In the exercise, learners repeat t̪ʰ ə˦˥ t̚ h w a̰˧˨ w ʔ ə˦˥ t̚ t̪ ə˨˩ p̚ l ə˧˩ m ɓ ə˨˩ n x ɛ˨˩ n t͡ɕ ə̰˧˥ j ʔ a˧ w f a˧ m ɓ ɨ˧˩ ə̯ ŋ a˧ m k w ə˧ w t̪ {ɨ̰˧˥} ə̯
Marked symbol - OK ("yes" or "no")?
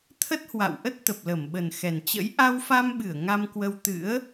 yes